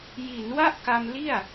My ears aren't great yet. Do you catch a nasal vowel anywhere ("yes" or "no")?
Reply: no